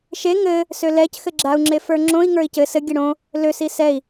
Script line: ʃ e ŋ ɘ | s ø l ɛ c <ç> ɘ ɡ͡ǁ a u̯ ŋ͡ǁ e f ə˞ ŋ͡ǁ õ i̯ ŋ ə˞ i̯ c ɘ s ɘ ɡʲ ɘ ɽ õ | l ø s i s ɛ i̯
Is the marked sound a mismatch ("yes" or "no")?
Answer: yes